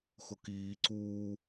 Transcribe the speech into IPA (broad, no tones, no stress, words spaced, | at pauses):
xʊkiː ǀuː